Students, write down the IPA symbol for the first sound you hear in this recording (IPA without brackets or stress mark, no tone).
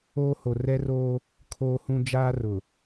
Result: oː